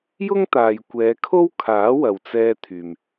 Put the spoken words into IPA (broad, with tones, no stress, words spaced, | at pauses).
jʊ˥ŋt̪aː˨j kʷɛː˨˧kʰo˥w kʰaː˨˥wɐ˨wt͡sɛː˧ t̪ʰyː˨m